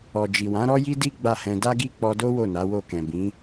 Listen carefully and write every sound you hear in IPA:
ɔ˨ d͡ʒ i˨ w ã˨˦ ɾ ɔ˦ j i˦ d i˦ ɡ͡b a˦˨ h ɛ̃˧ d a˦ ɡ i˦ k͡p ɔ˧ d o˦ w o˦˨ n a˨˦ w o˦˨ k ɛ̃˨ b ĩ˨˦

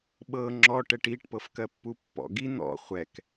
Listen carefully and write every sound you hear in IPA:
ɓ ɤ ŋ͡ǁ ɔ ʈ ɛ ʈ i ʈ p ɤ f k ɜ pː u pː ɔ̰ ɡ i n̪ ɔ̰ χʷ ɛ k

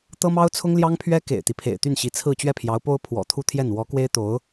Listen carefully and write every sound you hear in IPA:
t̪ ɤ˥ m ɑ˥ ʊ̯ t͡sʰ ʊ˥ ŋ l j ɑ˥ ŋ pʰ ɥ ɛ˥ k ḛ˨˩ ɪ̯ t̪ i˦ pʰ ḛ˨˩ ɪ̯ t̪ y˥˩ n ɕ i˧˥ t͡sʰ ɹ̩˥˧ t͡ɕ ɥ ɛ˥˩ pʰ j ɑ˧˥ ʊ̯ p o˥ ʊ̯ pʰ w ɔ̰˨˩ t̪ʰ u˥˧ t̪ʰ j ɛ˥˩ n w ɔ˧˥ k w e˥ ɪ̯ t̪ o˧˥ ʊ̯

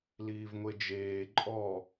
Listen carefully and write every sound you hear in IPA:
l iː v ŋʷ e d͡ʒ eː ǃʼ ɔ

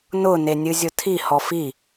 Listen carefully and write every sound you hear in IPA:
n ʊ n e nʲ ɨ zʲ ʊ tʰ i h ɔ f i

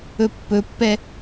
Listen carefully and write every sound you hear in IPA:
ɵ pː ɵ pː ɛ

